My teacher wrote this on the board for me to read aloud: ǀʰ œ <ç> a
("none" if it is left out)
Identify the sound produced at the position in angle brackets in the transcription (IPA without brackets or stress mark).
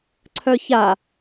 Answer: ç